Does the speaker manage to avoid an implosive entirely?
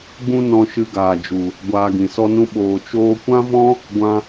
no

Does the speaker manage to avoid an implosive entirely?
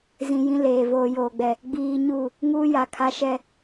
yes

